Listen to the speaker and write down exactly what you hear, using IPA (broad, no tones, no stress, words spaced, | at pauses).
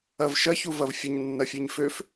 ɐv ʃɐçuvɐv fʲəɲnːɐfʲeɲ føf